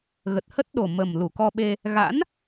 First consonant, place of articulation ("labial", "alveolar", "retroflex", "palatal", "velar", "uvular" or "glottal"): velar